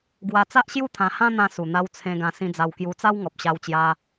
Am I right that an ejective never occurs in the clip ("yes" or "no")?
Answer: yes